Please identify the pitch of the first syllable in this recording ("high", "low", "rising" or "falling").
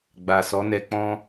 low